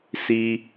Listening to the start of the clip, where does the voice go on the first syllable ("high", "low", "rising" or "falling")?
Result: low